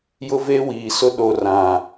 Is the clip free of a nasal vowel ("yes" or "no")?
no